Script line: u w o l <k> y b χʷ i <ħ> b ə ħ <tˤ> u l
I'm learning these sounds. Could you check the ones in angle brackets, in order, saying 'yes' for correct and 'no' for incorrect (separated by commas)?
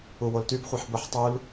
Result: no, yes, yes